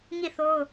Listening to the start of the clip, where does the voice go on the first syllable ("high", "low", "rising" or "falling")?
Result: falling